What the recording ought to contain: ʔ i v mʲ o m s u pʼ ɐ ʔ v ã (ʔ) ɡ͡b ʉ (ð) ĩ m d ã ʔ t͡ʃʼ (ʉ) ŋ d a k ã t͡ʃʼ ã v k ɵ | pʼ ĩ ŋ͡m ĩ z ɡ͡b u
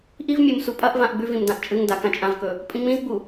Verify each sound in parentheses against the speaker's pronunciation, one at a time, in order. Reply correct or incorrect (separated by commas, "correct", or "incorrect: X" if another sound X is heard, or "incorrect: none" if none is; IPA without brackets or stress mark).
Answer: correct, incorrect: v, incorrect: ɨ